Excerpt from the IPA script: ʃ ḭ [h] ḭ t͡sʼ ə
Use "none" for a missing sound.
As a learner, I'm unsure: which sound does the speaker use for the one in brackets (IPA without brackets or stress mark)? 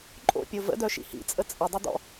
h